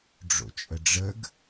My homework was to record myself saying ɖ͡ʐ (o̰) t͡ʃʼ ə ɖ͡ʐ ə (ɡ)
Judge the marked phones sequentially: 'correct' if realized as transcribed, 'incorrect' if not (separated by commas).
correct, correct